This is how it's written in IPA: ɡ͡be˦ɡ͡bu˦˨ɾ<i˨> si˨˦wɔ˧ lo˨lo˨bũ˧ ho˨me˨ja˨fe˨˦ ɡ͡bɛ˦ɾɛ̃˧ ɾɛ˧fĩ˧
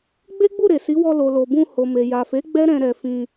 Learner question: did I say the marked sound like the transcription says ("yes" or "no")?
no